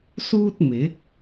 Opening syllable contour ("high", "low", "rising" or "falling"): high